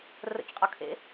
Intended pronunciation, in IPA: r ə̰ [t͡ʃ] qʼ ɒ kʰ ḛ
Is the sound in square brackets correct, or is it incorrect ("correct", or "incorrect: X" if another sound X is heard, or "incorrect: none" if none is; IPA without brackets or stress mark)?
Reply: correct